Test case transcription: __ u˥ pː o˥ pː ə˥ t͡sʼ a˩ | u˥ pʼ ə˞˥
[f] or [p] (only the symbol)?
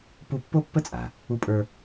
p